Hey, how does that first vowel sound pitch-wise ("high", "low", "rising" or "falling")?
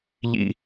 low